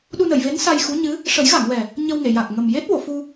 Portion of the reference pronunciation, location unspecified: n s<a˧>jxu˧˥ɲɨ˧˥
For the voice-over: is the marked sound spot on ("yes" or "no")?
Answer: yes